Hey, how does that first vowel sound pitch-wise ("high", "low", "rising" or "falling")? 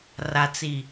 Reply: low